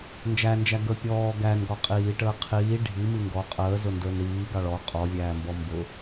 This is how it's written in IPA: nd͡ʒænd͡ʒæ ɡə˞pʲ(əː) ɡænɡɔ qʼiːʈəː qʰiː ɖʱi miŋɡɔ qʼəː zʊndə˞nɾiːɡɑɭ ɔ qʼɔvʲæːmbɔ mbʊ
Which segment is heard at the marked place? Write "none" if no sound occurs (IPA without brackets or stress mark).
ɔː